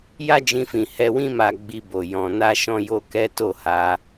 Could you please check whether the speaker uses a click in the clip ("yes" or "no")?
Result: no